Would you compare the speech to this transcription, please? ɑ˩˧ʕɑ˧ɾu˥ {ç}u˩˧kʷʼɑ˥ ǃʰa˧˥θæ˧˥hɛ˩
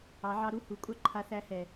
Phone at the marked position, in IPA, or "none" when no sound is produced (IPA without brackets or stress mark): h